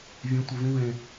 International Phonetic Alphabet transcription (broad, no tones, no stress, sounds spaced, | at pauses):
vʲ ẽ tʷ ɨ v ĩ v ẽ